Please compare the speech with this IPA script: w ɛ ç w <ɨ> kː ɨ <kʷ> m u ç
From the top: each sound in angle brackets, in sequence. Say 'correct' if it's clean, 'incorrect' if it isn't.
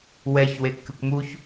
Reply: incorrect: e, correct

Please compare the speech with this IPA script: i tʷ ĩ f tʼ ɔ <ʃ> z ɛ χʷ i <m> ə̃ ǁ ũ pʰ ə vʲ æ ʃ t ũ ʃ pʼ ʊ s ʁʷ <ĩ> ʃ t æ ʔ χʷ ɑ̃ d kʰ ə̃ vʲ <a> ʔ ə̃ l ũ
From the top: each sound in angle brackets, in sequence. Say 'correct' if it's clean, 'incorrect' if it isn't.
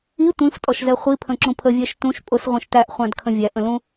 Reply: correct, incorrect: pʰ, correct, incorrect: æ

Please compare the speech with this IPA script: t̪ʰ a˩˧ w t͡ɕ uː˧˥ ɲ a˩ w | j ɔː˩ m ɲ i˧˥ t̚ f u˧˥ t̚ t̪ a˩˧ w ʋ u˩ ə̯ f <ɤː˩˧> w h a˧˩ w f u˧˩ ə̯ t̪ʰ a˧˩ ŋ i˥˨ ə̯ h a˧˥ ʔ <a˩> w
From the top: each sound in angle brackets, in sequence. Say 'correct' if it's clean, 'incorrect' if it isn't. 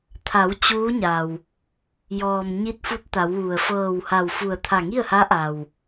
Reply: incorrect: ɤː˧˩, correct

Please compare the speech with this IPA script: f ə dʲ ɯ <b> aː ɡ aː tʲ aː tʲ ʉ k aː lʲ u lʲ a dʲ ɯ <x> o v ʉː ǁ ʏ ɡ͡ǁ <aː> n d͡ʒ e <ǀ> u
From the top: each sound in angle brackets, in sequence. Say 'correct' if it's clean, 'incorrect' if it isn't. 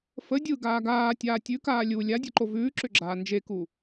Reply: incorrect: ɡ, incorrect: ǃ, correct, incorrect: k

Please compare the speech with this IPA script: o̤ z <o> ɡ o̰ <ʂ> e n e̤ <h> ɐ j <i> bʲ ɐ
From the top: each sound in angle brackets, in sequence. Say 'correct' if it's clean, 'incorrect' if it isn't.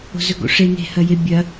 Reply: incorrect: ɵ, correct, correct, incorrect: e

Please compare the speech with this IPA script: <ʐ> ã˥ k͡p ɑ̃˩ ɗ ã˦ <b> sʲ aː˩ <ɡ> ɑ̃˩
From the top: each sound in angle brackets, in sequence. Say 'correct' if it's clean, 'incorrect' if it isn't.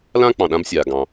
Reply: incorrect: l, correct, correct

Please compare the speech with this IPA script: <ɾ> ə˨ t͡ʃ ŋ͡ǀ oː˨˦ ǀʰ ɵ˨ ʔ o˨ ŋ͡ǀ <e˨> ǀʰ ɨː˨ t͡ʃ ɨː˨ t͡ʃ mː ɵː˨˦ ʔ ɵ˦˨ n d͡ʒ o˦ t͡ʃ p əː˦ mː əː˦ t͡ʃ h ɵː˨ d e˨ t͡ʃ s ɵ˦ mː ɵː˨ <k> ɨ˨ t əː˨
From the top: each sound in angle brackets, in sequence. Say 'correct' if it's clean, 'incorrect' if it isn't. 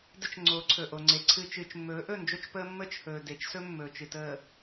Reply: incorrect: d, correct, incorrect: t͡ʃ

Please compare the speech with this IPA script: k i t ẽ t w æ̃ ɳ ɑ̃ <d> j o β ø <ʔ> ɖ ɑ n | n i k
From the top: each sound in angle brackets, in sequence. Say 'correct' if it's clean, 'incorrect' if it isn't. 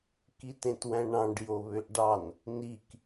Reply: incorrect: ɖ, correct

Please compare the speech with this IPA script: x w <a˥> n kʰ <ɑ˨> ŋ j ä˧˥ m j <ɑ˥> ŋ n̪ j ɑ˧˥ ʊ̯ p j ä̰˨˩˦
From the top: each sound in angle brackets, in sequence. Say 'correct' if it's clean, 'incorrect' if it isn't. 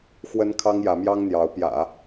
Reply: incorrect: ə˥, incorrect: ɑ˥, correct

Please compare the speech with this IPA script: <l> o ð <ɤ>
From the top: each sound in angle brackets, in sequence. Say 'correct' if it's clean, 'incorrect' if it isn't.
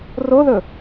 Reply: incorrect: r, incorrect: ɵ

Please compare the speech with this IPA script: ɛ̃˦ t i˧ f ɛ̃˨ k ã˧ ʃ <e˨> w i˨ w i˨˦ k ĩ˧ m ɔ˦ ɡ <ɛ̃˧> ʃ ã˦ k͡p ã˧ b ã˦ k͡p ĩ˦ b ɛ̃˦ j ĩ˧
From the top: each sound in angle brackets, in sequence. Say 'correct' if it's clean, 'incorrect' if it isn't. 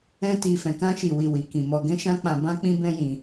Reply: incorrect: i˨, incorrect: ɛ̃˦

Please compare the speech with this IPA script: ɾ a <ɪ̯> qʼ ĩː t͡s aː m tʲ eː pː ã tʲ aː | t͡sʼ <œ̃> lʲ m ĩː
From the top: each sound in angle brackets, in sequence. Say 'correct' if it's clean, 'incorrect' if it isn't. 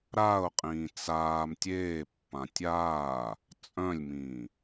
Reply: incorrect: ʊ̯, correct

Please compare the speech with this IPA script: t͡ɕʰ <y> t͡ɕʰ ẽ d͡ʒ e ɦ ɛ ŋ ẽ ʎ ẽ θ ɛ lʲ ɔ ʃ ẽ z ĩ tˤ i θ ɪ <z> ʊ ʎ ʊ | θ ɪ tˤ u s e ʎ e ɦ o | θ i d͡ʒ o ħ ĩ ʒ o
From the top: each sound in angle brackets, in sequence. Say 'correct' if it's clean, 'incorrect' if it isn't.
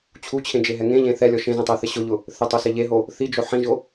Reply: incorrect: u, incorrect: ɕ

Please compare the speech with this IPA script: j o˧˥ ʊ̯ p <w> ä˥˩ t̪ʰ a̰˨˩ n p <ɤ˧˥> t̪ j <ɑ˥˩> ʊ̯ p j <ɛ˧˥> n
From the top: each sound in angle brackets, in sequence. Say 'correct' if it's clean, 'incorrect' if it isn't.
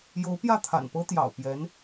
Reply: incorrect: j, incorrect: ɤ˥, incorrect: ɑ̰˨˩, correct

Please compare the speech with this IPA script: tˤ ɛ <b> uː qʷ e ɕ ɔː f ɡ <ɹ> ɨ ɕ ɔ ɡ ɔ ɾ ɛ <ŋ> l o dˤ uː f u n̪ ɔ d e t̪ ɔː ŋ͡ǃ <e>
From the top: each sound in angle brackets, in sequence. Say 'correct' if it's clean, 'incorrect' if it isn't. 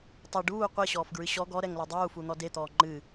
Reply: incorrect: ɖ, correct, correct, incorrect: ɨ

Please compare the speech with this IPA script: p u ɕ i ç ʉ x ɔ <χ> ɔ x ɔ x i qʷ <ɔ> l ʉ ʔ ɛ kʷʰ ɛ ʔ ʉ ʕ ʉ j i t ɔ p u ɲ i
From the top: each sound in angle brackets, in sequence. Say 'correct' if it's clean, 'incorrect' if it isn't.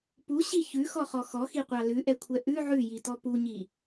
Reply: correct, incorrect: ɑ

